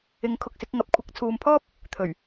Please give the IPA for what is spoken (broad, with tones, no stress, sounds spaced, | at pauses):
ɪ˨˥ ŋ kʰ ʊ˨ k̚ s ɪ˨˥ k̚ ŋ ɐ˨˥ p̚ kʷʰ ɪ˨˥ k̚ t͡sʰ uː˨ m pʰ ɔː˥ p̚ | t̪ʰ ɵ˨˩ ɥ